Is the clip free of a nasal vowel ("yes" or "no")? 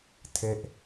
yes